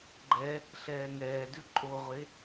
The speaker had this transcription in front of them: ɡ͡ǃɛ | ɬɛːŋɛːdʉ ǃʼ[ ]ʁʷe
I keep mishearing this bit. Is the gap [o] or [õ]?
o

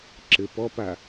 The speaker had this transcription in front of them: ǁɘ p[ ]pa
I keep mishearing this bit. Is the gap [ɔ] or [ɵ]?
ɔ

